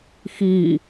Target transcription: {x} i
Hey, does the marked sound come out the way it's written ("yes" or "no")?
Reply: yes